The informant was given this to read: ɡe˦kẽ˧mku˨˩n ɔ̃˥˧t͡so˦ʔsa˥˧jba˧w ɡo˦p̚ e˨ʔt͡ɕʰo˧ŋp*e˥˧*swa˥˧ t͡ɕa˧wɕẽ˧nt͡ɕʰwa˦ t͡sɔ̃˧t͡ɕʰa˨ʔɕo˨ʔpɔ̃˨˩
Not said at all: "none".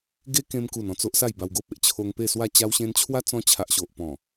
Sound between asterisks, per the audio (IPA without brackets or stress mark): e˥˧